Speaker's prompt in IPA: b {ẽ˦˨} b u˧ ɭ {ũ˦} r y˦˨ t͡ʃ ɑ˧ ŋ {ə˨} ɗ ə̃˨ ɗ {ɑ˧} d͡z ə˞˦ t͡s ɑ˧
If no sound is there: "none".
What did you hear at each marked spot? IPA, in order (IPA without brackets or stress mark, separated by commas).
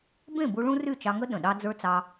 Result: ẽ˦˨, ũ˦, ə˦, ɑ˦